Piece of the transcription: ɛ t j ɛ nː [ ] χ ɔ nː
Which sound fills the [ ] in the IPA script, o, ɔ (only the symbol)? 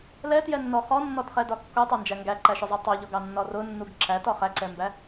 ɔ